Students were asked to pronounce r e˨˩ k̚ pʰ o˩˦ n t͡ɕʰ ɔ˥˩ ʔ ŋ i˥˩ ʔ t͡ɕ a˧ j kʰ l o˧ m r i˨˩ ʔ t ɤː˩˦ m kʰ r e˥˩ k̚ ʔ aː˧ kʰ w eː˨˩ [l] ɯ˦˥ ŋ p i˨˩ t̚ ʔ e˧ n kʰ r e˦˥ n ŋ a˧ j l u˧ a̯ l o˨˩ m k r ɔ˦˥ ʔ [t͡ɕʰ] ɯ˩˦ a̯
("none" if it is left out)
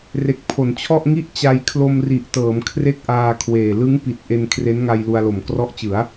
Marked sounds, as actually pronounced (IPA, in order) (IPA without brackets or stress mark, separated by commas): l, t͡ɕ